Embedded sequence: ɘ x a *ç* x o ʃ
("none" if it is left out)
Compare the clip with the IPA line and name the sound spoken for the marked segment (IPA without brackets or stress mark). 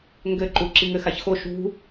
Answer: ç